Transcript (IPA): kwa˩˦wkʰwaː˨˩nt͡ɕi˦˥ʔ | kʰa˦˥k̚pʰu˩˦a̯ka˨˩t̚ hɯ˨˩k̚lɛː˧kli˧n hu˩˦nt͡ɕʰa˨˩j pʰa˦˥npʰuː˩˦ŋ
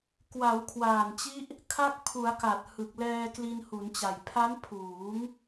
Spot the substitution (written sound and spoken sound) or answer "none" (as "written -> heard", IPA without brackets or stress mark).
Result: t͡ɕʰ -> t͡ɕ